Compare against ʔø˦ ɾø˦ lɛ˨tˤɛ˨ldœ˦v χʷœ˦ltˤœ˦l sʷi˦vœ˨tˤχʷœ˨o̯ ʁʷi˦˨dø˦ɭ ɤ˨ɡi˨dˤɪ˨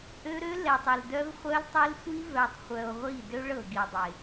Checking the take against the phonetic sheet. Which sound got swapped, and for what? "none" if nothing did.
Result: none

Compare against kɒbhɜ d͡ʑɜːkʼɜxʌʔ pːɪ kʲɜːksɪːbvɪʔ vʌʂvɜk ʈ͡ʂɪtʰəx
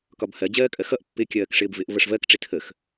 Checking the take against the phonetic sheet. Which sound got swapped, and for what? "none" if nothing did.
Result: s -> ʂ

